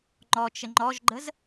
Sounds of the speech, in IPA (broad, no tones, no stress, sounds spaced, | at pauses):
ŋ͡ǃ ɔ t͡ʃ ə ŋ͡ǃ ɔ ʒ ɡ͡ǃ ə z